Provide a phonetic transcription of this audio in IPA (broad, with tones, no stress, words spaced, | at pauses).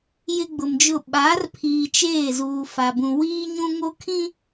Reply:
jɪ˦ɡ͡bʊ˨md͡ʒʊ˦˨ ɓa˨˦r pʰiː˨t͡ʃeː˦˨ zuː˨fa˨bũ˨ wiː˦ ɲũ˦ŋo˦ kʰĩ˦